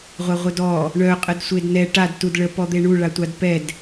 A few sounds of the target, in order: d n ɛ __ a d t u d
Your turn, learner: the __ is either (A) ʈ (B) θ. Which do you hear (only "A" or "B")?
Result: A